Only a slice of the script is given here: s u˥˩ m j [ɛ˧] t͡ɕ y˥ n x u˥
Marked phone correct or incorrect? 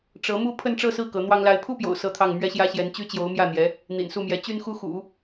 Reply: incorrect